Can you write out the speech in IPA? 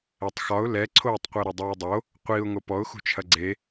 ɛtˤxɒʊ̯ lɛǀʰoːtˤqʷɛ ɾʊdˤoːdˤo | qʷiʊ̯ ŋopɔʊ̯xṳt͡ʃʰɐ ɡ͡ǀe

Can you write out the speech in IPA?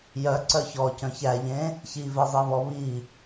jœǀœ çɔcœ̃ çæʎẽ | çivezˤeβɔ βi

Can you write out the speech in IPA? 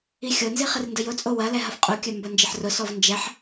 ixʲonzi χɪrndəjʊt͡sʼo wɐlɛ ɦɐfqʼukʲœ mbɐnd͡ʒɪħrʊsɔv nd͡ʒɛħ

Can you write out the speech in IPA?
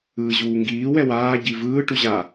ɯːʑuːŋɡiː wɛwaː ɟivɯː ʈuʑa

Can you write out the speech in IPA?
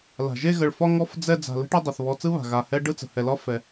la̤˩ʒe˥ɣə˨ɭfɒ˥ ŋɔ˥f d͡zɛ˥ d͡za̤˨ lə̤˥ʈɐ˥dˤɯ˩θ βɔ˨ t͡sɯ˥βa̤˩ ɣa˩hɛ˦ ɖɯ˥t͡sə̤˩ hɛ˩lɒ˥ fɛ˩

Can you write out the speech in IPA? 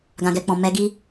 ɡã˨ɡɛ˨ k͡pɔ̃˨mɛ˨˦ɡi˦

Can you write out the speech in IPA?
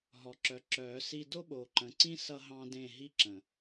ɦɔ˨ǁœ˨˦ǁœː˨˦si˦ do˦ɓoː˨ ǃə̃˨ǀĩ˦ sʌ˦ ɦɑ̃˦dẽ˦˨ ɦi˦ǁə̃˨

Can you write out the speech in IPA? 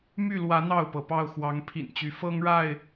my˥˨lwä˨˦ n̪ɑ˥˨ʊ̯pɤ˩pɑ˥˨ʊ̯xwɑ˨˦ŋ pʰḭ˨˩nt͡ɕy˨˦ fɤ˦ŋɻa˥˨ɪ̯

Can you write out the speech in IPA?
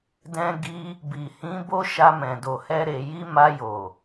dɛ̃˧ɡi˧ | bi˨hĩ˨˦ bo˦ʃa˧ mɛ̃˨do˨hɛ˧ɾe˨ ji˧ma˧jo˨

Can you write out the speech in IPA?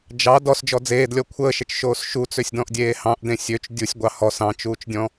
d͡ʒɑ dɔsd͡ʒɔ d͡zeːdlʲɔ kʷʰəːʃət͡ʃʃoːs ʃut͡søsʲdɔ̃ʔdʲeː hɑ̃ʔdẽ sʲøt͡ʃ dʲusʲɡʷɑ hɔs ɑ̃t͡ʃuːt͡ʃdʲɔ̃

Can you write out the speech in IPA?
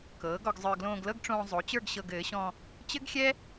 kɤː˩˥ɡɔ˧ɡ zˤə˞˧ ɡlõː˧ɡlɤ˥˧ɡʈ͡ʂõː˧ zˤo˩˥t͡ɕə˞˥˧ɡ ɕɤ˧ɡɘː˩˥ ɕɔ̃˧ | t͡ɕɘ˥ɡxʲɛ˥

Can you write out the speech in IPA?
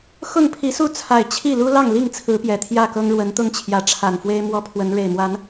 xʊ˥˨ŋpʰi˨˦su˥˨ t͡sʰa˨˩ɪ̯ t͡ɕʰi˥˨lu˦ lɑ˥˨ŋli˥˨ŋt͡sʰɹ̩˨˦ pjɛ˨˩t̪ʰjä˥˨kɤ˦ŋ ɻwə˨˦nt̪ʊ˦ŋt͡ɕʰjä˨˦ ʈ͡ʂʰa˨˩nfwe˦ɪ̯ mwɔ˦pʰwə˨˦n ɻe˨˩ɪ̯mwa˨˦n

